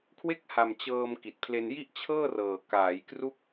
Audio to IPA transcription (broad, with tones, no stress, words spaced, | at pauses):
kʰwe˥˩k̚ha˨˩m t͡ɕɤː˧m ki˨˩t̚pʰle˧nji˥˩ʔ t͡ɕʰɤː˥˩rɤː˨˩ kaː˩˦jkru˦˥k̚